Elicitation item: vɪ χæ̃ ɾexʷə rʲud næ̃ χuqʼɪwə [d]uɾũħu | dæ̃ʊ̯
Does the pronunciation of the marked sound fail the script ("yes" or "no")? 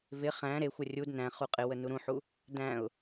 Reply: yes